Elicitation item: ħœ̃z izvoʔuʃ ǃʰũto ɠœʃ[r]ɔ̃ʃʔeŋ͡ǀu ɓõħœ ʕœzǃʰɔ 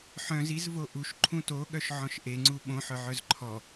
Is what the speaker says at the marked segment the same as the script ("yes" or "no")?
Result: no